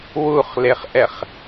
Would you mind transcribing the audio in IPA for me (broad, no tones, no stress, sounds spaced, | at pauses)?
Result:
w u χ l e χ ʔ ɛ χ